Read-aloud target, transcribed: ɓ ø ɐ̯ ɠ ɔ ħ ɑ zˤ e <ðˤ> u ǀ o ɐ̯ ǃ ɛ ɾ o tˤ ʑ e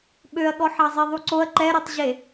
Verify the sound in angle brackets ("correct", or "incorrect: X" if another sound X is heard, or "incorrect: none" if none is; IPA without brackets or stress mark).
correct